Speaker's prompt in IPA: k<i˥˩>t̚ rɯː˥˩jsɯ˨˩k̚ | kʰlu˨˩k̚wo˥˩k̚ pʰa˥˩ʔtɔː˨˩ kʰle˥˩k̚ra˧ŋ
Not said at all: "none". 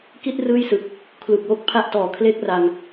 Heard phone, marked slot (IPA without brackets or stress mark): i˥˩